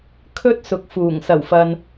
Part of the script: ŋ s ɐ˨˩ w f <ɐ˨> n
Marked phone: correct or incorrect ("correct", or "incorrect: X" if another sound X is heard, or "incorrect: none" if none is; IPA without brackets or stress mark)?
correct